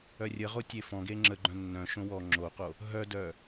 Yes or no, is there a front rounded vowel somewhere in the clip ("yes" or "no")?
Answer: yes